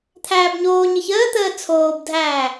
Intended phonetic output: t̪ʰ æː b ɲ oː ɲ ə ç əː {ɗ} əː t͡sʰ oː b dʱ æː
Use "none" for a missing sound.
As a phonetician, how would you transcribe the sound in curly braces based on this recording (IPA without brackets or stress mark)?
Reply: t̪